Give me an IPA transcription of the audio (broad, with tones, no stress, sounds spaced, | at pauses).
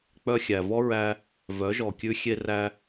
k͡p œ˧ xʲ æ˨ v ɔ˦ ɹ æ˧ | v œ˨˦ ʒ ɔ˨ kʲ ʉ˧ xʲ e˧ r æ˧